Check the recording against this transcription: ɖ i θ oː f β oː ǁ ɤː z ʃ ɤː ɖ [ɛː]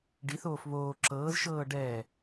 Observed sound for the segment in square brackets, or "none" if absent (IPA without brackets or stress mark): ɛː